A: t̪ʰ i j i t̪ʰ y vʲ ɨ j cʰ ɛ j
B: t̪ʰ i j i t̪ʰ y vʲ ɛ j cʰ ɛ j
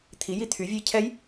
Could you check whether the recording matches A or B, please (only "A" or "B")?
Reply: A